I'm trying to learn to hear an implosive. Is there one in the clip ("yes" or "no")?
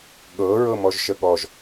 yes